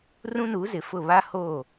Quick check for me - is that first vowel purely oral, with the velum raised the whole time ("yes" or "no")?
no